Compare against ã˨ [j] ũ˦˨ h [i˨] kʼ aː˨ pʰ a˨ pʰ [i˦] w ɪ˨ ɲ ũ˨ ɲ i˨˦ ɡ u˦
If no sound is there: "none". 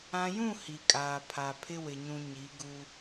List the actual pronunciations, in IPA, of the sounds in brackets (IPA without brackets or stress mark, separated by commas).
j, i˨, ɪ˦